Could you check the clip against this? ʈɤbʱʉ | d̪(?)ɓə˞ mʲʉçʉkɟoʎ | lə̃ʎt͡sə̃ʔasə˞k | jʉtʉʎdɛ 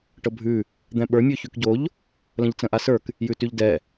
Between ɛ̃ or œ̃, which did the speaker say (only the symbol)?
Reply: ɛ̃